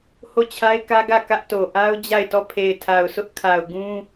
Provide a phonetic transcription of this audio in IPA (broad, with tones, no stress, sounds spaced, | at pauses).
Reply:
h o˦˨ t͡ɕʰ a˦ ɪ̯ k ä˦ ɡ ä˦˨ k ä˦ ʔ t o˨ ʔ a˦ ʊ̯ d͡ʑ a˦˨ ɪ̯ t ɔ˦˨ pʰ e˨ ɪ̯ tʰ a˨ ʊ̯ sʰ ʊ˦ ʔ kʰ a˨ ʊ̯ ɡ ũ˦